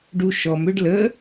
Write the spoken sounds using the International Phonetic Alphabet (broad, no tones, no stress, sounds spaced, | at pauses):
ɖ u ʃ ɔ m ʏ ɖ l ə